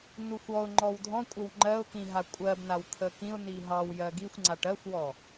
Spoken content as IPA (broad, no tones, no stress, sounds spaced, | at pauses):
n u xʷ ɔ ʊ̯ ŋ͡ǃ ɔ w dʱ ɔ̃ kʷʼ ə w ŋ͡ǃ ɜ ʊ̯ k ĩ ɦ a kʷʼ ɜ b n a w t̪ʰ ə k ĩ ʊ̯ n i ɦ ɑ w j ɜ ɡ i xʷ ŋ͡ǀ a ʈ ɜ xʷ w ɔ